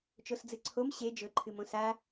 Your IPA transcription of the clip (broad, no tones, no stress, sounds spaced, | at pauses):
t͡ʃ o s d͡z ɨ ǀʰ o m ɕ e d͡ʒ ɵ ǃʰ ɨ m õ s a